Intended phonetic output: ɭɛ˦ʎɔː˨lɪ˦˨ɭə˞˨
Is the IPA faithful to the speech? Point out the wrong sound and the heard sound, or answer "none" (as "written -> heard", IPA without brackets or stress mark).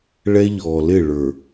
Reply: none